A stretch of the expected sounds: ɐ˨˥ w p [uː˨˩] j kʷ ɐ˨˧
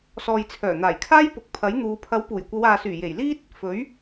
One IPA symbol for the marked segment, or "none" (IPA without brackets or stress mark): uː˨˩